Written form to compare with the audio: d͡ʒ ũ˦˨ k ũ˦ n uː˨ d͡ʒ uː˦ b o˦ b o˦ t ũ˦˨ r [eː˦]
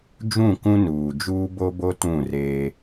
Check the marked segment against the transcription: correct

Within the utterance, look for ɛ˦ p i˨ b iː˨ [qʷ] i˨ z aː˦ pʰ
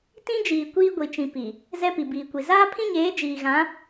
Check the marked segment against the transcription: incorrect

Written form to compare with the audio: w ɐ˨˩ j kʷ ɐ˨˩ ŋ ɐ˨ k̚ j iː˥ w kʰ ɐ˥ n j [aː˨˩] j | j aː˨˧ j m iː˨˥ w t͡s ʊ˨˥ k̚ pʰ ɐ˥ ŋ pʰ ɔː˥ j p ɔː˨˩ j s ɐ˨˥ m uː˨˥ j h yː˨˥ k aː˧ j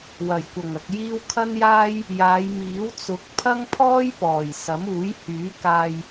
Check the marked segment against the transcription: incorrect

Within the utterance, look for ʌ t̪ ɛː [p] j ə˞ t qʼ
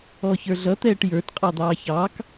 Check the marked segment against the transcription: incorrect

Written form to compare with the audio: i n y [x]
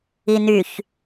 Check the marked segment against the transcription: incorrect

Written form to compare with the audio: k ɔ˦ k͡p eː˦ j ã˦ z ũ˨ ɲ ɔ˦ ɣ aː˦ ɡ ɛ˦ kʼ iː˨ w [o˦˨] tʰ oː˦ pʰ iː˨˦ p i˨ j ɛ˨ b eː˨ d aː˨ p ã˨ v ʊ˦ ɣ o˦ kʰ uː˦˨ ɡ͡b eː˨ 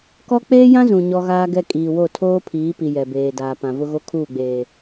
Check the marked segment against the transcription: correct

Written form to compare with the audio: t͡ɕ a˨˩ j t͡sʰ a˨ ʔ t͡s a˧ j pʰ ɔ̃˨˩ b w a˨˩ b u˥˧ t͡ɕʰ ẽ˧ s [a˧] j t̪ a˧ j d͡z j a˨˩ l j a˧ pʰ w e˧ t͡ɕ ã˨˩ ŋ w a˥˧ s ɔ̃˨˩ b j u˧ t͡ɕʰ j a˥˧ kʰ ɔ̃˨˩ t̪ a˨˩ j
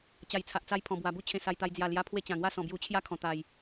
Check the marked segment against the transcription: correct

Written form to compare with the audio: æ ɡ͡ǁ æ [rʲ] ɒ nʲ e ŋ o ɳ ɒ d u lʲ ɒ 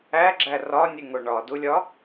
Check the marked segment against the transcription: incorrect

